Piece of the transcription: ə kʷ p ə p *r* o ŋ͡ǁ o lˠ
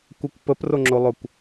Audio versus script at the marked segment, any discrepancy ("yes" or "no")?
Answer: no